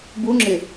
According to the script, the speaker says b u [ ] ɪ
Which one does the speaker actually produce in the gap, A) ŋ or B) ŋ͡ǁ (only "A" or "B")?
B